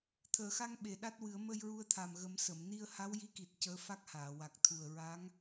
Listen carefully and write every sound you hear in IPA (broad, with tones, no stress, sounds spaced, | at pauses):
t̪ʰ əː˨˩˨ x a˧ ŋ ɓ e˨˩ ɗ a˦˥ t̚ w ɨ˨˩˦ ə̯ m ə˧ j ɹ u˧ ə̯ t̪ʰ a˨˩ m ɣ ə˨˩˦ m s ə˨˩˨ m n i˧ ə̯ h a˧˥ w j i˧˥ k i˨˩ t̚ c əː˧˥ f a˦˥ k̚ h aː˨˩˨ w a˨˩ k̚ t̪ʰ u˨˩ ə̯ ɹ a˧˥ ŋ